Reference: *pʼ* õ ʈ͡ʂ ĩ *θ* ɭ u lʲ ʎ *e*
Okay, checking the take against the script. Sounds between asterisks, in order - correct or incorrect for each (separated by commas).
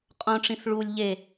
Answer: incorrect, correct, correct